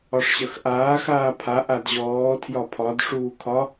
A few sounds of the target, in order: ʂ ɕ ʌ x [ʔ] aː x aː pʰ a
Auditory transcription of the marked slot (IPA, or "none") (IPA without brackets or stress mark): ʔ